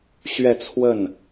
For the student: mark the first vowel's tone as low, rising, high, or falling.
falling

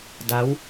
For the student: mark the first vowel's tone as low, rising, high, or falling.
rising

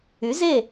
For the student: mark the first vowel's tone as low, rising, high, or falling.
rising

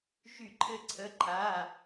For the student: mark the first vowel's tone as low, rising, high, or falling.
falling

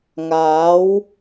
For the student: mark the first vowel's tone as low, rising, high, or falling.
rising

